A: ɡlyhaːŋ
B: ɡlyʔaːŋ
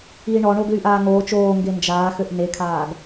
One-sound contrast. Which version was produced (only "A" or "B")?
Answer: B